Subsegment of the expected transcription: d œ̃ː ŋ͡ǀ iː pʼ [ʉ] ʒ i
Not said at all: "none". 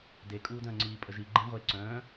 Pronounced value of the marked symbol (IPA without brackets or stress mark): ə